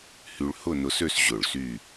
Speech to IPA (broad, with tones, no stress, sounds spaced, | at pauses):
h y˧ ɭ h ʊ˥˧ n ʊ˧ s ø˥˧ s ʑ ʊ˧˩ ɭ s y˥˧